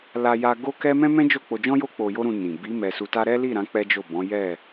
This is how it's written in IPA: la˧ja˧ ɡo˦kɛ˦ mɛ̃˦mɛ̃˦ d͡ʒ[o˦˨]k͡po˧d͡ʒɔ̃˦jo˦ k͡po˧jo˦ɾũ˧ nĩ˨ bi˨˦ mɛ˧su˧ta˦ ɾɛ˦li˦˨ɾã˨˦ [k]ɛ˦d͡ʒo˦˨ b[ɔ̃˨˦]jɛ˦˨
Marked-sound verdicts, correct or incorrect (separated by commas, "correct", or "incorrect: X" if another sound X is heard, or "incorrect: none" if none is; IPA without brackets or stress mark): correct, incorrect: k͡p, correct